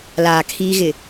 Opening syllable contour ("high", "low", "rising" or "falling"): low